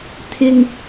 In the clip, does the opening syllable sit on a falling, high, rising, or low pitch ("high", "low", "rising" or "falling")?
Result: high